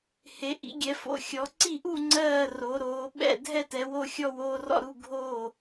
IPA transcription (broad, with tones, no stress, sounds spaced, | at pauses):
h e˨˦ ʔ ḭ˨˦ ɡʲ ɛ˨˦ f o̰˨˦ xʲ ɔ˨˦ ǀ i˥˨ ʔ u˥˨ ŋ͡ǀ ɜː˥˨ r o˨˦ ɾ oː˨˦ ɓ ɛ̰˥˨ dʱ ɛ˥˨ t ɛ˨˦ w o˥˨ xʲ ɔ˥˨ w oː˥˨ r ɔ̰˥˨ ɾ u˥˨ ɡʱ oː˥˨